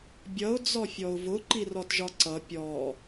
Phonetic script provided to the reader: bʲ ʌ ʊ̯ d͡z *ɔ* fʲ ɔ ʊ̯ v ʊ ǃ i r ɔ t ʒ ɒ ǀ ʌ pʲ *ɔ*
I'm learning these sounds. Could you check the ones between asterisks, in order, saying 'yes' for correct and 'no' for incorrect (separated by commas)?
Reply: yes, yes